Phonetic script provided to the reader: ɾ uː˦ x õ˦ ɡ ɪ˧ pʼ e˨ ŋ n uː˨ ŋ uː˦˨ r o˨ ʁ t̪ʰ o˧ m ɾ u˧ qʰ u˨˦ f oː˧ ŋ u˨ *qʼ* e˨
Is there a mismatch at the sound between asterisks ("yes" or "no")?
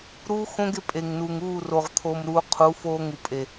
yes